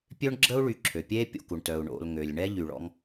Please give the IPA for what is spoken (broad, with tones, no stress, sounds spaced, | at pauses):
pʲ ø˥ ɳ ɡ͡ǁ ə˥ u̯ ɭ y˨ ǁʰ ø˩ pʲ eː˥ pʲ o̰˨ k u˩ ɳ t œ˩ u̯ ɳ o̰˨ l ŋ ø˩ lʲ ɳ ɛ˦ ʎ y˨ ɭ ɔ̰˦ ŋ